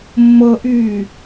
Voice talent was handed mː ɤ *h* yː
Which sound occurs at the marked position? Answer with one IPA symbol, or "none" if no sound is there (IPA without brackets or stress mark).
ʔ